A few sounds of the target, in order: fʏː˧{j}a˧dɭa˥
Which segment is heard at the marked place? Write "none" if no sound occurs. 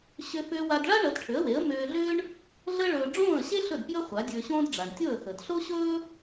w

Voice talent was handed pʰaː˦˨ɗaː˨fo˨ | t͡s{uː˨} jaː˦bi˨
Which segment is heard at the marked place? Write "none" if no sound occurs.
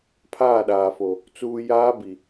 uː˨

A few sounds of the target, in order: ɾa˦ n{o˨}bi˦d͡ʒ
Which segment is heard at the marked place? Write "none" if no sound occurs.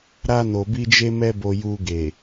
o˧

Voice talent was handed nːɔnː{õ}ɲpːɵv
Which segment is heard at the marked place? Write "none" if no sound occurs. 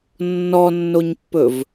o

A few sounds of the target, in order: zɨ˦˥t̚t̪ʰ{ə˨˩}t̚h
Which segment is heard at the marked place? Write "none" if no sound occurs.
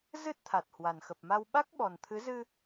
a˨˩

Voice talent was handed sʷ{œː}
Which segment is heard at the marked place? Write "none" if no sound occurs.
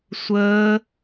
əː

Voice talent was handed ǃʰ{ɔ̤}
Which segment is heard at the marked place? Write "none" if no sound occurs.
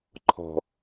ɔ̤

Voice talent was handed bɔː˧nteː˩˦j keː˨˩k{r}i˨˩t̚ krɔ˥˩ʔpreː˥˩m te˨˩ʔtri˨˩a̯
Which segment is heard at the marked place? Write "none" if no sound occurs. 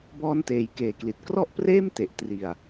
l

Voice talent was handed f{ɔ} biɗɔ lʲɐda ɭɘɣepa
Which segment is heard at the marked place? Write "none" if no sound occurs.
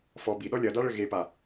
ɔ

